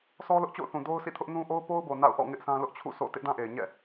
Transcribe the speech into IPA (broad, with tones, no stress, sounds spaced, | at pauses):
sʰ ɔ˦ l ʊ˦ ʔ t͡ɕ o̰˦˨ ʊ̯ θ ũ˨ d o˦ ʊ̯ s ḭ˦˨ tʰ ʊ˦ ʔ n ũ˦ ʔ o˦ ʊ̯ p o˦ ʊ̯ b o˨ n a̰˦˨ ʊ̯ ʔ ɔ̰˦˨ ŋ ɪ˦ ʔ s ã˦ l ʊ˦ ʔ t͡ɕʰ ṵ˦˨ s o̰˦˨ t ɪ˦ ʔ d ã˦ ʔ e˨ ɪ̯ ɲ ɛ̰˦˨